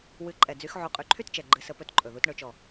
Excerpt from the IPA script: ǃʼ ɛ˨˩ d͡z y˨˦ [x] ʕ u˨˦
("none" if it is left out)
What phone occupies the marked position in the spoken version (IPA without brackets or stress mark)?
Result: x